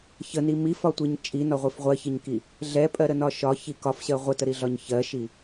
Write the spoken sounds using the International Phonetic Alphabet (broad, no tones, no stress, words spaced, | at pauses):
çəni mifɒtʷiɲ t͡ʃʼinɒʁʷif ʁʷɜçiɲki | ɮɛpʼɜɾənɒ ʃɒçi kɒfɕɜ ʁʷətəɾiɮɒɲ çɜʃi